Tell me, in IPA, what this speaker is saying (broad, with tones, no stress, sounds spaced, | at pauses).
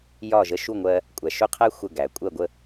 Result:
j ɒ˥˩ ʒ ə˧ ʃ u˥˩ ŋʷ ɜ˧ | kʷʼ æ˩ ʃ ʊ˥˩ qʰ æ˥ xʷ ə˥˩ ɡ æ˩ kʷʼ ɜ˥˩ ɡʷ ə˥˩